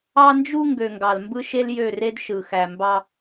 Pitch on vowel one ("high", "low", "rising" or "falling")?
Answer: high